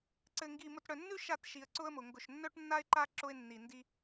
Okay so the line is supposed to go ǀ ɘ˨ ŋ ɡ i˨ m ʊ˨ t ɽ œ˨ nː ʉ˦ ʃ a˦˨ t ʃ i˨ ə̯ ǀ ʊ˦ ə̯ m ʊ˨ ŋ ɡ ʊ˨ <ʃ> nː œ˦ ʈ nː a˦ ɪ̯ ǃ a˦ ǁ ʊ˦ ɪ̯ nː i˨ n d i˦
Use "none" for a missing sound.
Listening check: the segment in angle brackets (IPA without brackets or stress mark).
ʃ